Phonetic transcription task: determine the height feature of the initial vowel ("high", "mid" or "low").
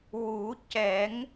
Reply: high